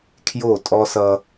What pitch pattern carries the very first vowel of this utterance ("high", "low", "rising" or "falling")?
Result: falling